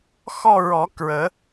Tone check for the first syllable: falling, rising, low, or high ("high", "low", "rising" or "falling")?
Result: falling